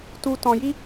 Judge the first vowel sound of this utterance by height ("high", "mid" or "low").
high